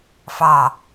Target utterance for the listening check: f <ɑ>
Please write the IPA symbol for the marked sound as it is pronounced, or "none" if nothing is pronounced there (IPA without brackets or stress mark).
ɑ